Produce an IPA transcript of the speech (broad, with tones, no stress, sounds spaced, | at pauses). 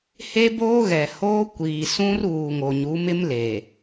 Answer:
h e˦ b oː˦ ɣ ɛ˨ h oː˦ kʷ iː˨ s ũ˦ r uː˨ ŋ o˨ ɲ u˨˦ m ɪ˦ m l e˨